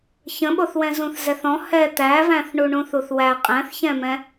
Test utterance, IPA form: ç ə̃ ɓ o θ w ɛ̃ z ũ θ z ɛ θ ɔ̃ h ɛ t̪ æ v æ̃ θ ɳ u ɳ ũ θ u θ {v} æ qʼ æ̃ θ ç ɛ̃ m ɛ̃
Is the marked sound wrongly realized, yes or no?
yes